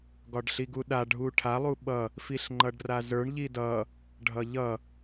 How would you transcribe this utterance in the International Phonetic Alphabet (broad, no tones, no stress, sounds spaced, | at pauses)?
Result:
ɡ ɒ ɖ ɬ i ɡ u ɗ a ɖʱ u ʈʰ a lˠ u ɓ ʌ | f i ɬ ŋ͡ǃ ʌ ɖ r a z ə˞ ɳ ʎ i d ʌ | ɖʱ ʌ ʎ ʌ